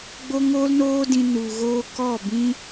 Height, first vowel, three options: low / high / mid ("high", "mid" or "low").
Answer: mid